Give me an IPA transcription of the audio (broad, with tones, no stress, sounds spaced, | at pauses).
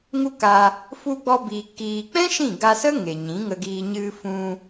ŋ u˦ k a˧ | f u˧ ɡ͡b ɔ˧ b iː˨ k iː˨ k͡p ɛ̃˦ ʃ ĩ˦˨ ɡ a˧ s ə˦ ŋ e˨ ɲ ĩ˨˦ ŋ ə˧ ɡ iː˧ ɲ ɨ˧ f ũ˧